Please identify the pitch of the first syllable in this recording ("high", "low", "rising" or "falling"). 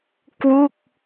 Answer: falling